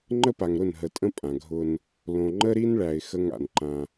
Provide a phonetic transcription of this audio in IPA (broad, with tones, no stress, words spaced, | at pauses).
ŋ͡ǃə˦pa˨ŋɾʊ˦˨n ɦə˨tʼə̃˦ pʼã˨ɡʱʊ˦n | lõ˨ ŋ͡ǃə˦ɾi˦nɭæ˨ɪ̯ xə˦ŋa̰˨nǃã˦